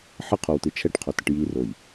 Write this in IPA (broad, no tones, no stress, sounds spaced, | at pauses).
ħ ə qʰ o w t ɨ t͡ʃʰ ɛ ʈ qʰ o t ə ʈ j i r o j